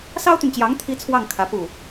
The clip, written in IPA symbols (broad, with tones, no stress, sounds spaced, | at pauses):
s ɑ˥ ʊ̯ t̪ y˨ n t͡ɕ j ɑ˧˥ ŋ t̪ʰ i˥ t͡sʰ w ɑ˥˩ ŋ kʰ ä˧˥ p u˥˩